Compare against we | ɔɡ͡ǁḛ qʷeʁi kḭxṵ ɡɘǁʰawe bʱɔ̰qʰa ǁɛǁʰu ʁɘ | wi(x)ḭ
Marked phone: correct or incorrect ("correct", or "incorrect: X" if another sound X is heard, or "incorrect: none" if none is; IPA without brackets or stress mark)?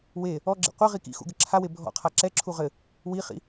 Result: incorrect: χ